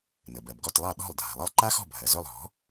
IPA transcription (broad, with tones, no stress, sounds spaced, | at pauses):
n ə˩ b ɜ˩ b ɡ ɔ˥˩ t lˠ ɑ˥˩ ɗ ɔ̤˥˩ lˠ dʱ a̤˩ lˠ ə˥˩ lˠ ǃ a˥ x ɔ̤˥˩ bʱ ɜ˩ z ɵ˥˩ lˠ ɦ ɔ̤˩˥